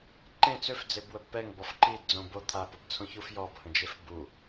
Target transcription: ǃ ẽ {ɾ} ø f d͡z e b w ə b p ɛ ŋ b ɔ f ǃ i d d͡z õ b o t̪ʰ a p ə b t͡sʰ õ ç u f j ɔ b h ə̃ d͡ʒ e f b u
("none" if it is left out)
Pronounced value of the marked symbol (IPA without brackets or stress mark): t͡s